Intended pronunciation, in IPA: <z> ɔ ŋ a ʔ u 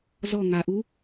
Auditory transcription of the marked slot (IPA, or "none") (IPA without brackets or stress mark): z